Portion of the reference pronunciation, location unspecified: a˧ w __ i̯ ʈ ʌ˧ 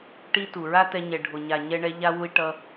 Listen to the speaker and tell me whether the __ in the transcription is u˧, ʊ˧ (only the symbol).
u˧